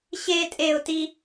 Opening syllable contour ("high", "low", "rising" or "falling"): high